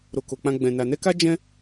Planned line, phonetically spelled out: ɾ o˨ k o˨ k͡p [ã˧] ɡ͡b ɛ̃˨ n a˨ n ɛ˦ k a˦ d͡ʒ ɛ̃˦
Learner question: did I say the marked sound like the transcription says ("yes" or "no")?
yes